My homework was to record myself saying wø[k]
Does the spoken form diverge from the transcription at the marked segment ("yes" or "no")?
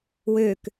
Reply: no